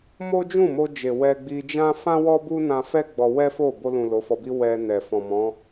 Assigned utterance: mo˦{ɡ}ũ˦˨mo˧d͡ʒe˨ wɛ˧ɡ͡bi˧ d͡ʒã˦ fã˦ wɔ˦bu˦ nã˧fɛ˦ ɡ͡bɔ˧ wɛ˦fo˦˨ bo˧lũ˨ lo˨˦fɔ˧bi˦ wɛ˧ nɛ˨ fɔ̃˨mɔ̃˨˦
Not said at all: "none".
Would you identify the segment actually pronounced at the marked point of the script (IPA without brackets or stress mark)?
d͡ʒ